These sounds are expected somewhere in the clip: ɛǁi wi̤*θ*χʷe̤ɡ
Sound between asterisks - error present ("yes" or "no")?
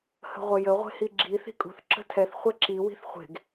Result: no